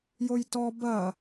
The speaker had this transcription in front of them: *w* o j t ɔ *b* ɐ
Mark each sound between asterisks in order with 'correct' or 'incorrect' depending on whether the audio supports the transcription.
incorrect, correct

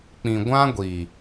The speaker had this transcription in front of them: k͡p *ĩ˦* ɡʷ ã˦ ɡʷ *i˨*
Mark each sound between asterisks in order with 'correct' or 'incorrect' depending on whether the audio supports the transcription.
incorrect, correct

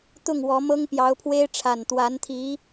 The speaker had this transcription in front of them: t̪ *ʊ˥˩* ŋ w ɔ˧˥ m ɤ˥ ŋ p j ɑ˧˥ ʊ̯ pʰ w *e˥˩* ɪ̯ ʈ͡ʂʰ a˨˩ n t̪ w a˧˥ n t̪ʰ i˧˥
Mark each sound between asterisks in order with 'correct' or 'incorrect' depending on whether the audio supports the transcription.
correct, incorrect

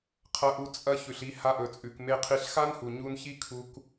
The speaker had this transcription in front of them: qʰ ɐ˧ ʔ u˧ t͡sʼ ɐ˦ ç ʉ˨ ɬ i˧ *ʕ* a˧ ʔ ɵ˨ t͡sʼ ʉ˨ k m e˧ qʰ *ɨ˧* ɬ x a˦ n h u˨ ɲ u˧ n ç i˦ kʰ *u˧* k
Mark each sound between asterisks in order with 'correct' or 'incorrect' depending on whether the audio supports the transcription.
incorrect, incorrect, correct

